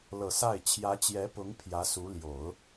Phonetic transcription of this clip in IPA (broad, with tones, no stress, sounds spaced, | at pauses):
l ɤ˨˩ s a˥˩ ɪ̯ t͡ɕʰ j ä˧˥ t͡ɕ j ɛ˧˥ p ʊ˧˥ ŋ pʰ j ä˧˥ s u˧˥ l j o˨˩˦ ʊ̯